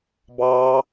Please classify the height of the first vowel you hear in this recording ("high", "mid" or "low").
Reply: low